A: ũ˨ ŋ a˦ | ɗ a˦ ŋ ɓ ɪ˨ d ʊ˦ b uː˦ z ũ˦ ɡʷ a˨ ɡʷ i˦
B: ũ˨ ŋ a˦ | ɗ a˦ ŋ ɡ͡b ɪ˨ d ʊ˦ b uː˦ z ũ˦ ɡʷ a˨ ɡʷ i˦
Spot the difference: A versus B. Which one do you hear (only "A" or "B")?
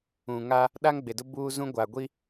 B